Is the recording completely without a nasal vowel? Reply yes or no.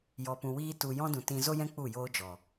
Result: no